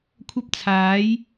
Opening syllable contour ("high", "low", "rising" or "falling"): high